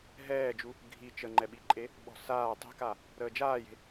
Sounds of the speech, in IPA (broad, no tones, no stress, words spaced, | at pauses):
ɦɛːd͡ʒu | ɡʱi t͡ʃəŋ͡ǃɛɓiǃʼe | ɓɔ̤saː tˤe̤ka | ɾəːd͡ʒaːje̤